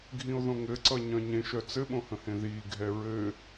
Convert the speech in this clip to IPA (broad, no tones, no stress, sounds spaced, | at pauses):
ɡʱ ĩ o̯ ð õ ŋ ɘ ǀ ʌ ɲ œ̃ ɲ ẽ ʃ œ t͡s ɘ ɓ õ h ə̃ h ẽ ð iː ɡʱ ɛ ɹ ɘ